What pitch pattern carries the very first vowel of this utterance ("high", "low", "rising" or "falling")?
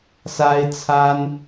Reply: high